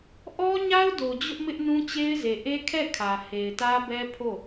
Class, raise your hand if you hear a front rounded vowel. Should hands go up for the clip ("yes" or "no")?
no